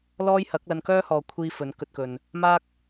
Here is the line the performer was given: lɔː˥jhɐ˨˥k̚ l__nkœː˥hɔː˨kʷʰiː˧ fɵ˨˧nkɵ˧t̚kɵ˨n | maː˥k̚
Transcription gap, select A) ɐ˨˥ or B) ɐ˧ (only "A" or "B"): B